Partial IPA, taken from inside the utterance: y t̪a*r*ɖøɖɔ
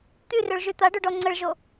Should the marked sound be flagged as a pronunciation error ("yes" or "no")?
yes